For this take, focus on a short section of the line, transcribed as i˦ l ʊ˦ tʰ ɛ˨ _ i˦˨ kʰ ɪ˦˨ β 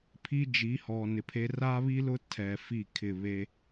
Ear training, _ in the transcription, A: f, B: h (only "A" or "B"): A